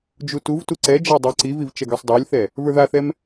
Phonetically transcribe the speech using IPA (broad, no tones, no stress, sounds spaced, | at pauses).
d͡ʒ u t u v t u ǀ ɛ d͡ʒ a dˤ ə˞ ǀ i v i v t͡ʃ ɛ ɡ ə˞ sˤ dˤ ə˞ lʲ θ ɛ | v ə˞ ð a θ ɛ m